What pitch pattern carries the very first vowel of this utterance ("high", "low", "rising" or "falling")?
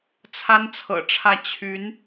high